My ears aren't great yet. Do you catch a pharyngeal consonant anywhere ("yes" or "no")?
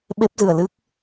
no